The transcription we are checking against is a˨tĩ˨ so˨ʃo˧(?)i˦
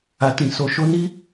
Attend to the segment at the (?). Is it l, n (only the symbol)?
n